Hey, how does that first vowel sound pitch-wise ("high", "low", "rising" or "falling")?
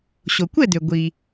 low